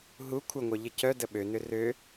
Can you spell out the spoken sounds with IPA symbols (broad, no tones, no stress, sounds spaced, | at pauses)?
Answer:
ɦ u kʷʰ ə ŋʷ œ ʎ ɪ c œ d ə ɓ ø n ʏ r ø